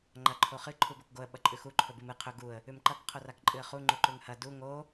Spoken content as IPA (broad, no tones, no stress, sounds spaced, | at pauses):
ŋ͡ǃ ɐ ǃʰ o χ ɨ ǃʰ u b o k ɡ o ə̯ ɓ ɐ ǃʼ ʉ x u ǃʰ ɵ b ɨ m ɨ qʰ ɵ ɡ u ə̯ | ʉ m ǃ ɐ k qʰ o r a k ǃʼ ɨ ə̯ χ u ŋ͡ǃ u ǃ ʉ ŋ h ɐ d u ŋ o